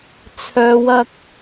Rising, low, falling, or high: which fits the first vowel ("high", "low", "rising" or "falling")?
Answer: low